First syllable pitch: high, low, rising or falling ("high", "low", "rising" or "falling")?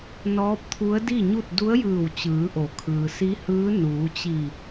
rising